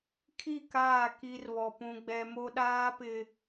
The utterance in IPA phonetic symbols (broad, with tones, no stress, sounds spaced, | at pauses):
kʰ i˦˨ k aː˦˨ k i˦ r β ɔ˨ p ũ˨ ɡ͡b ɛ˨ m o˦ ɗ aː˦ p ɪ˨